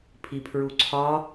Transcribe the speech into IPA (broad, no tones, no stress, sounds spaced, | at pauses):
pʰ i pʰ ɹ u ǀʰ ɒ